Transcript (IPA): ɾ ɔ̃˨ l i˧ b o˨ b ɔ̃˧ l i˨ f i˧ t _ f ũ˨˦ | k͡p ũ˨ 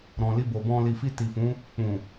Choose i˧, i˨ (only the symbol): i˨